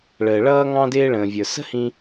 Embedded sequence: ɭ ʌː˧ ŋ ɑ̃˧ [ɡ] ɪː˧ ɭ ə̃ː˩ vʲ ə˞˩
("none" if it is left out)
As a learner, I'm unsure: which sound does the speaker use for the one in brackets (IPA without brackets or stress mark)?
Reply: d